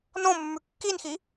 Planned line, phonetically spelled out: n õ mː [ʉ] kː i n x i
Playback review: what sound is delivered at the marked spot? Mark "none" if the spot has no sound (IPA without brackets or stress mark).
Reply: ʉ